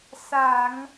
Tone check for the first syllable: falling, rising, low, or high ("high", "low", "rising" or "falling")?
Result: low